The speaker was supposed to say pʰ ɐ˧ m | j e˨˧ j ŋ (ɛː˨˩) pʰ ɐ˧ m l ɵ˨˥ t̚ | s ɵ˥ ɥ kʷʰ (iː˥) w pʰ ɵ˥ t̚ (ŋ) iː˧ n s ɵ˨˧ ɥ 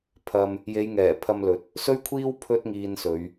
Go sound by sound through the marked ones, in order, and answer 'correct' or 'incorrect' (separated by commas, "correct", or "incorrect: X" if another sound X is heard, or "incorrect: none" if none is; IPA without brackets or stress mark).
correct, correct, correct